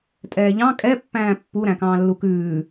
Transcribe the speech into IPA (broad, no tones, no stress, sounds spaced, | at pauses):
tʼ ɛː ʎ ɑ̃ kʼ ɛ pː æ̃ː pː u ɾ æ̃ k ɑ̃ː lː u k ʉː